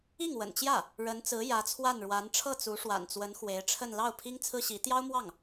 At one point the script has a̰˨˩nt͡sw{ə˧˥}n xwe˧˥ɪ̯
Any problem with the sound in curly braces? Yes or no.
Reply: no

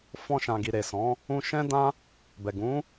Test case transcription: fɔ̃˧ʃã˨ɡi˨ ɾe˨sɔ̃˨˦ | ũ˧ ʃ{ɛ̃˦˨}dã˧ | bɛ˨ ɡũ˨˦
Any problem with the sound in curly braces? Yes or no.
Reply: yes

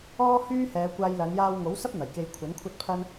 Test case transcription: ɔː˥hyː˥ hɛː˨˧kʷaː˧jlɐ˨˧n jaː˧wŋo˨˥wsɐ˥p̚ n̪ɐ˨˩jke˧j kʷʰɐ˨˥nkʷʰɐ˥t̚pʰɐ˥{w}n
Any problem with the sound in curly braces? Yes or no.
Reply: yes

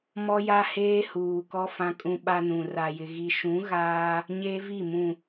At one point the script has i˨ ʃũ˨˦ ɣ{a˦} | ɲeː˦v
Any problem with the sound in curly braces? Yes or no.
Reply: yes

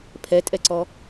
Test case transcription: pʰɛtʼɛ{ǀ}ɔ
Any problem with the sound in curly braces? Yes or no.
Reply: no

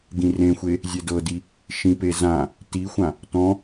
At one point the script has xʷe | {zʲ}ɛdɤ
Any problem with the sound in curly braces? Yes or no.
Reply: no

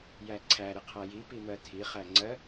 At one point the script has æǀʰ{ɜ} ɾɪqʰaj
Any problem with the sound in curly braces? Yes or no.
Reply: yes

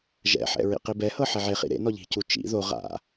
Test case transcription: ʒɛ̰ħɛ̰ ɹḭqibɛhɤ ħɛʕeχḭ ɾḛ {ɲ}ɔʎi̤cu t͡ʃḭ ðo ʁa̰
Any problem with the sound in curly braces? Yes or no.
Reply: yes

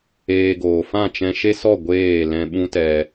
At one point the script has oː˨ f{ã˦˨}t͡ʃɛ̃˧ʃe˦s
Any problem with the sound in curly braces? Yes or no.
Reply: no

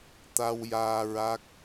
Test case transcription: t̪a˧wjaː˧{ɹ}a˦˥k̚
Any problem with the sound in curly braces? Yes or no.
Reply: no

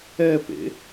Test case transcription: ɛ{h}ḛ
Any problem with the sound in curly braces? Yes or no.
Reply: yes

